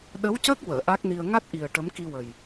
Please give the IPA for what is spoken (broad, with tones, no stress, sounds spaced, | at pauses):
ɗ ə˧˥ w c əː˦˥ k̚ w əː˨˩˨ ʔ a˦˥ k̚ n i˧ ə̯ ŋ a˦˥ t̚ ʔ i˨˩ ə̯ ʈ ə˧˥ m k i˧ w ə˨˩ j